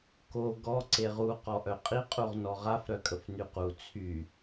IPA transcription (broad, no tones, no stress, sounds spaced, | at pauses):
k o ɡ ɔ ǀ e ʁ u q ɔ ʔ œ qʼ i qʼ u ʁ n ɔ ʁ a f ɾ œ kʼ ə f n y q u t͡sʰ y